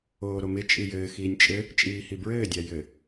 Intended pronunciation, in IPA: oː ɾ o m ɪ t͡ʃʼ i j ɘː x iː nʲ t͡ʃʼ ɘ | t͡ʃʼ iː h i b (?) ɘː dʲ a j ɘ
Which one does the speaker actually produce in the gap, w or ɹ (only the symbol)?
ɹ